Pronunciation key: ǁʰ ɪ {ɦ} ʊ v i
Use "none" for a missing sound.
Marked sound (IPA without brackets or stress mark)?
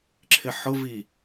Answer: ħ